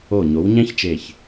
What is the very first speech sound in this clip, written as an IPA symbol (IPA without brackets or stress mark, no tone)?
o